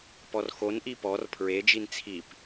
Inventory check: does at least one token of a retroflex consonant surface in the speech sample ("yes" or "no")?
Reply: no